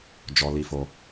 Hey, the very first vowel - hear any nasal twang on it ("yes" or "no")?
no